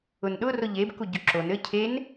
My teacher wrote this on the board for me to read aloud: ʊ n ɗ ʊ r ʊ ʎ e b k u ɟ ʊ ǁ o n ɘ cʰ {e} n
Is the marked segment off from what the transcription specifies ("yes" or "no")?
no